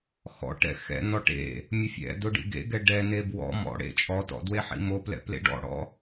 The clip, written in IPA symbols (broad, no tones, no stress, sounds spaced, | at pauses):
x ɔ̰ ʈ ɛ̰ x ɛ̰ n ɔ ʈ ḛ | mʲ ʊ fʲ ɛ̰ d ʊ ɖ ḭ ɡ ḛ ɡ ɛ ɖ ɛ n e b w ɔ̰ m ɔ̰ ɽ ḛ t͡ʃʼ ɔ t ɔ̰ d w e ħ ḭ m o p l ɛ̰ p l ḛ ɖ ɔ̰ ɽ ɔ̰